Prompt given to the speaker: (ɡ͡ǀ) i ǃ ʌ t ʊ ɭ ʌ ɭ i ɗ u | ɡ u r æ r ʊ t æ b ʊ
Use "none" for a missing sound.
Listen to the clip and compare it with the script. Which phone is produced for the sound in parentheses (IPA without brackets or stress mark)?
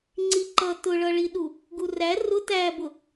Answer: ŋ͡ǀ